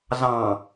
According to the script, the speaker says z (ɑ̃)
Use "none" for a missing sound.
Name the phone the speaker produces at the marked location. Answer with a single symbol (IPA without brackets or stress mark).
ɑ̃